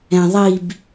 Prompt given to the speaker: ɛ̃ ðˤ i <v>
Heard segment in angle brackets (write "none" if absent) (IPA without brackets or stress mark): b